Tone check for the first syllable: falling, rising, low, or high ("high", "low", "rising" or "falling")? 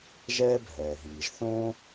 high